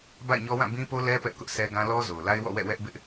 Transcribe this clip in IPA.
ba̰˦˨ɪ̯ɲɔ˦wã˦˨ bĩ˦po˦lɛ˦ pɛ˦ʔkʊ˦ʔ sɛ˦ɡã˦ lɔ˦zo˨ʊ̯la˦ɪ̯ wɔ̰˦˨wɛ̰˦˨wɛ˦ʔ bɪ˦ʔ

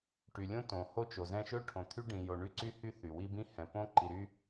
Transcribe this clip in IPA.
ʈy˨lʲõ˦ tõ˨ ho˦t͡ʃo˨zɛ̃˦ ʃɵ˦ʈʰõ˨t̪ʰy˦ ɖĩ˨jo˨ ɳy˦ǀy˦hy˦ θy˨wi˦bĩ˦hɛ̃˨ põ˦ǃi˨ɾy˦

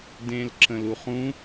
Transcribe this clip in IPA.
dẽlǁə̃luχũ

